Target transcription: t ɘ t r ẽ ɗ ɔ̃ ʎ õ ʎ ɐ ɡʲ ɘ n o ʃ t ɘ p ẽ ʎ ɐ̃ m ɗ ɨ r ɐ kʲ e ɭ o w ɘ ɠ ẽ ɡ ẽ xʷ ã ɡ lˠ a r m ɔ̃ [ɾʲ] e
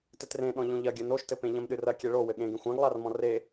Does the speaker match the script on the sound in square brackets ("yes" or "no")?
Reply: no